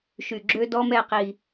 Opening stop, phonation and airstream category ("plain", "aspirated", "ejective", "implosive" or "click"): click